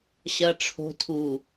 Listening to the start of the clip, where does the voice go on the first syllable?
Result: low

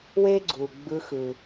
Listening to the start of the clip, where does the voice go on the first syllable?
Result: high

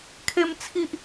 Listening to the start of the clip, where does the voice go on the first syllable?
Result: high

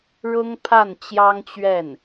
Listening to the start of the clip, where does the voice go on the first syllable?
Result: high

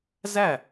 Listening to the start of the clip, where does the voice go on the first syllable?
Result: falling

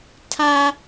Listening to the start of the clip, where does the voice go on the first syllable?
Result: high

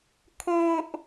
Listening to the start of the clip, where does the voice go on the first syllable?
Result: high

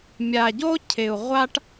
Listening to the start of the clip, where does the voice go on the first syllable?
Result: low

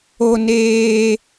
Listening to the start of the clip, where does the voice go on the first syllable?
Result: high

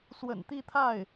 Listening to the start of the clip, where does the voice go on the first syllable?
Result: low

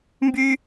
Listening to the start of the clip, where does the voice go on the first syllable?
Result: high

